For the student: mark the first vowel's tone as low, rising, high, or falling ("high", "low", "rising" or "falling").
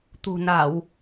low